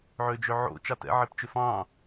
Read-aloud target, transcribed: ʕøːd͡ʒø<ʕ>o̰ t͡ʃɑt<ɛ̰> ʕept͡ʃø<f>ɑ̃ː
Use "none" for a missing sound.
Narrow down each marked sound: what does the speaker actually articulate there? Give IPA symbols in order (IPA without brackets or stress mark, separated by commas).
ʕ, ɛ̰, f